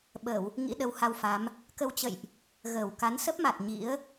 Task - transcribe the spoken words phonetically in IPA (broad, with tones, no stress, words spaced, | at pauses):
ɓə˧˩˨w | ŋḭ˧˥ɗə˨˦wha˧wfa˨˦m | kə˧wt͡ɕə̰˧˨jʔ | ɣəː˧˩wka˨˦n sə˦˥p̚ma˨˩t̚ ɲḭ˧˥ə̯